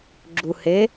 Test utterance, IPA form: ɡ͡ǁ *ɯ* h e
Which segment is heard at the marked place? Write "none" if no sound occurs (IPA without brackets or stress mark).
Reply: u